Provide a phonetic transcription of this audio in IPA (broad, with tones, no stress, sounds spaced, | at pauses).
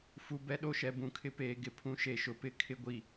f u˨ b ɛ˨ ɗ o˦ ʃ ɛ˨ b ũ˨ kʰ ɪ˦ p eː˨ ɡ ɪ˦˨ pʰ ũ˦ ʃ e˦˨ ʃ ʊ˨ p ɪ˦ kʰ ɪ˦ ɡʷ i˨